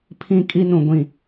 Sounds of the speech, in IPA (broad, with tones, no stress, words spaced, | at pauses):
pʰĩ˦˨kʼi˦nũ˨ ɡʷĩ˨